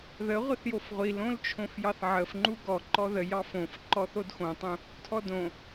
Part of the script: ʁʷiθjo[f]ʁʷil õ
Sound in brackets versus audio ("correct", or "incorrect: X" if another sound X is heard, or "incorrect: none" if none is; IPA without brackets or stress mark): correct